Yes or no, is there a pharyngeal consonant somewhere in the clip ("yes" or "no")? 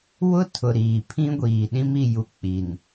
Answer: no